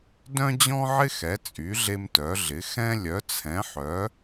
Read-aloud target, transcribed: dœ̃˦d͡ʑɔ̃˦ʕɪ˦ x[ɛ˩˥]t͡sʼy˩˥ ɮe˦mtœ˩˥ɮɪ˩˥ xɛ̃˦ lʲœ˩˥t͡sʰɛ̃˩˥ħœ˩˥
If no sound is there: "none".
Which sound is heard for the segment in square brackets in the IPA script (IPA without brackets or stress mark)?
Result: ɛ˩˥